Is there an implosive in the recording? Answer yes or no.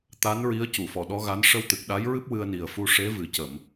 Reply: yes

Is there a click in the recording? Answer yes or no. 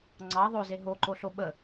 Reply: yes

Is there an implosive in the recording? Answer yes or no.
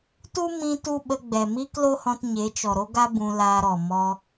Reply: yes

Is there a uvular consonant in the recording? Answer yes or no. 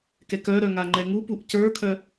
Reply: no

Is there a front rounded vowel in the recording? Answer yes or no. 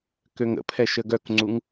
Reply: yes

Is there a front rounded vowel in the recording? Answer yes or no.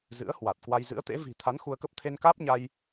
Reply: no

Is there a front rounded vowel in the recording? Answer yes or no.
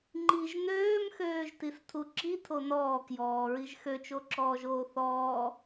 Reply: yes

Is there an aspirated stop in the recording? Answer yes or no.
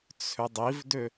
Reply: yes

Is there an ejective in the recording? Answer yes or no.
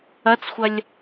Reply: no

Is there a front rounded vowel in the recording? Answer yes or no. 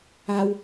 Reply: no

